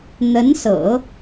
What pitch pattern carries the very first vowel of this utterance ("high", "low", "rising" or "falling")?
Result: rising